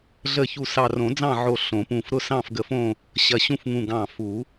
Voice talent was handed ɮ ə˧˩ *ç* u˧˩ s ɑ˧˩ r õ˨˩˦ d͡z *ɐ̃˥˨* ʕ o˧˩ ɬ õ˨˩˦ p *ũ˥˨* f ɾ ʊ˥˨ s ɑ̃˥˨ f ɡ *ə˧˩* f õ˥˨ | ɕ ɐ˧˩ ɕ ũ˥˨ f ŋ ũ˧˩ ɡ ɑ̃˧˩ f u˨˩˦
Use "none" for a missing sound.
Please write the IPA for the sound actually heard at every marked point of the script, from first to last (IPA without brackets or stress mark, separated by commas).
ç, ɑ̃˥˨, ũ˧˩, ə˧˩